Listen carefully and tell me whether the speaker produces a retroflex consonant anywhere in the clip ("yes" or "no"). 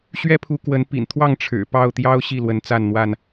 yes